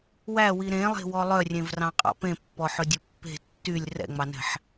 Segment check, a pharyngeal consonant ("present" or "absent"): present